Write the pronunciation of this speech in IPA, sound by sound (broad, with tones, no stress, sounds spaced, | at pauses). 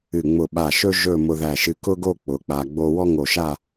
ɨ˧˩ ŋ͡m ʊ˧˩ ɓ a˧˩ ʃ ɵ˥ ʒ ɵ˥˧ m ʊ˧ ð æ˧˩ ʃ ɨ˧ k ʊ˥ ɡ o˥˧ k͡p ʊ˩˧ k͡p a˧ ɡ͡b o˥ w ɔ˥ ŋ o˧˩ ʃ a˥˧